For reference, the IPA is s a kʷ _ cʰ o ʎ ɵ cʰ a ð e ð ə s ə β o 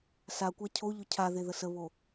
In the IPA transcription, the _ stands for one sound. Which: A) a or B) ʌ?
A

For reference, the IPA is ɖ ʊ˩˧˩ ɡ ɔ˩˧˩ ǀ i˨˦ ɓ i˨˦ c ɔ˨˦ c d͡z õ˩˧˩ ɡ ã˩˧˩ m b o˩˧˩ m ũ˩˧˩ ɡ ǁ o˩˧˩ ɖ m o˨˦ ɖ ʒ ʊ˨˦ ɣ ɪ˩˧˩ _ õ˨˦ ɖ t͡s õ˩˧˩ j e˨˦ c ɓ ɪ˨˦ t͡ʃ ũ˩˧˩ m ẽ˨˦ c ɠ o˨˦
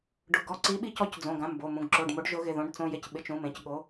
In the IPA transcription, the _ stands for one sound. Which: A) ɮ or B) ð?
B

